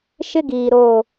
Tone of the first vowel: high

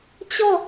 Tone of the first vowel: falling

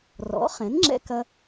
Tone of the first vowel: rising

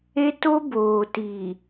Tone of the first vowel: high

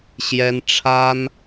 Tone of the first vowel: high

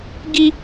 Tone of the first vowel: high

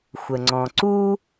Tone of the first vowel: low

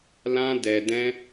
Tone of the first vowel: high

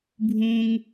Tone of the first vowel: high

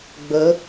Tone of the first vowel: rising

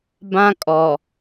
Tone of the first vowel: high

